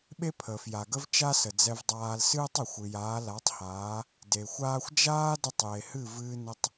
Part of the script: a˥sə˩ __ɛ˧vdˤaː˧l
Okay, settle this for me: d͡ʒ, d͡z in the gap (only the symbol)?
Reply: d͡z